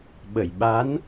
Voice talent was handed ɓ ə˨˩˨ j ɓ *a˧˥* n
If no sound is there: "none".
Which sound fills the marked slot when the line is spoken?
a˧˥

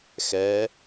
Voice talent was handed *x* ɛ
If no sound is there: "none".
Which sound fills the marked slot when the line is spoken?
x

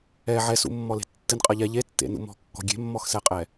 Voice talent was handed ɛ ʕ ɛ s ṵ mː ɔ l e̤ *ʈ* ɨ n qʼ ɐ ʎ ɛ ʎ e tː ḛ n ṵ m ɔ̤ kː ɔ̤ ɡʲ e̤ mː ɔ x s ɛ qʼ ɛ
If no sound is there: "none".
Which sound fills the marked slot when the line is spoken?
tː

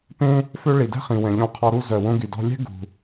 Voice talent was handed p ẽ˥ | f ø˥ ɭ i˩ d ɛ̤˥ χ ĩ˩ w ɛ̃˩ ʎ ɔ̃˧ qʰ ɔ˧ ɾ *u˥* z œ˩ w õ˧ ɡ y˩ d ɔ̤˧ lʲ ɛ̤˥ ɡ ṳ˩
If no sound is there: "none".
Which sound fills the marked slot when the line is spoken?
u˥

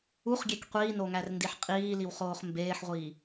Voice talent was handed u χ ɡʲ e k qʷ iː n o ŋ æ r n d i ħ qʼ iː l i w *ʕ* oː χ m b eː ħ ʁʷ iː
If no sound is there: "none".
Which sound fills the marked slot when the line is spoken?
χ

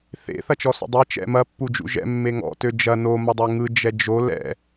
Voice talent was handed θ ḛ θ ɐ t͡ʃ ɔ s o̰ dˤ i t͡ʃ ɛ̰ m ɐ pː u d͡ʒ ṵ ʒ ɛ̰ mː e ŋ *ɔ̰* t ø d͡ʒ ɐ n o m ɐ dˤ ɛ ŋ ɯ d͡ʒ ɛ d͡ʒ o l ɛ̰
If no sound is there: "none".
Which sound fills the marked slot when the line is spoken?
ɔ̰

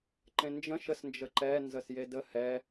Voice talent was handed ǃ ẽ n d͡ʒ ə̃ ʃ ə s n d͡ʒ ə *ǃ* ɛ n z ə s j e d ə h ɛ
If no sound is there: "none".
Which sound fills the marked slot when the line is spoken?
ǃ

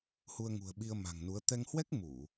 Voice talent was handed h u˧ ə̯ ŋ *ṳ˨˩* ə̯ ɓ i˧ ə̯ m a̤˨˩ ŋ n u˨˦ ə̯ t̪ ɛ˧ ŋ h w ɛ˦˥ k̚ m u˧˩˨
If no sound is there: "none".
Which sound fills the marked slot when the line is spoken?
ṳ˨˩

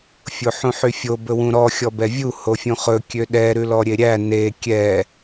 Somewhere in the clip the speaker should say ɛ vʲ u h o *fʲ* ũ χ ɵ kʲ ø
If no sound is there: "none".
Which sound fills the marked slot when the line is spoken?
fʲ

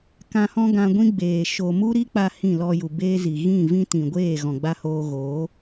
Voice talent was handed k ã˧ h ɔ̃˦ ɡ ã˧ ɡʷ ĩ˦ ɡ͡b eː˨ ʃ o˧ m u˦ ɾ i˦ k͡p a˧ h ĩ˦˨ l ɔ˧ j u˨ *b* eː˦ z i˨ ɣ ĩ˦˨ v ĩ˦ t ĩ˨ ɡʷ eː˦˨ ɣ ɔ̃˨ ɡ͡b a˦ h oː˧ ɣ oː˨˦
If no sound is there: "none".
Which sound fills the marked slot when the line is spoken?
b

